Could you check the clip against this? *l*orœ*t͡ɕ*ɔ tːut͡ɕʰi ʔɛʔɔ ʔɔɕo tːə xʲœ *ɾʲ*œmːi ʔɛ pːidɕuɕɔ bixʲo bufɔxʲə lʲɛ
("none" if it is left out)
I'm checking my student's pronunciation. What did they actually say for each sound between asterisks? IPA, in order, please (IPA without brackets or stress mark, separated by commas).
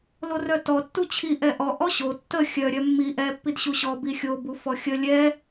l, t, ɾʲ